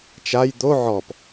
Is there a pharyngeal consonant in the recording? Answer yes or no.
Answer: yes